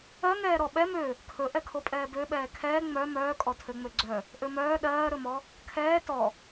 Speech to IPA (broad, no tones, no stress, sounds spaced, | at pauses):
ɜ ŋ ɛː ɾ ɔ ɓ ɛ m ø | kʰ ɵ ʔ ɛ kʰ o pʼ ɛː b ø ɓ ɛː kʰ ɛː ŋ͡m œ m œː kʼ ɔ tʰ ø ŋ͡m ø ɡ͡ǀ œ | ʔ ø m œː ɗ ɜː ɾ ɵ m ɔ | kʰ ɛː t ɔ